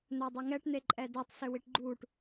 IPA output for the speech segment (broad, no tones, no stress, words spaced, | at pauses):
n̪œdˤøŋɛʈ n̪eǃʼɛdɛtˤ søwiʈɡ͡ǃuʈ